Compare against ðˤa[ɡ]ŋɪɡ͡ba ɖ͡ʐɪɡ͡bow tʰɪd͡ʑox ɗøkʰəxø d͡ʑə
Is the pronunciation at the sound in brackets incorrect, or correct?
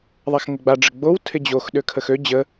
incorrect